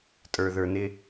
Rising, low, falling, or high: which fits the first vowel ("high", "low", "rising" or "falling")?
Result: low